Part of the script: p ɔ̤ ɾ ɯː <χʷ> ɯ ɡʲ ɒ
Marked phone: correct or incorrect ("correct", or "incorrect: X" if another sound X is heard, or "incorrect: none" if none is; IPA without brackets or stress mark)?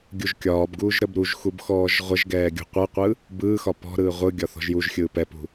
incorrect: ʁʷ